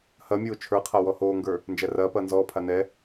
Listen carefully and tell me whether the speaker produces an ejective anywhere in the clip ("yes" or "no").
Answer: no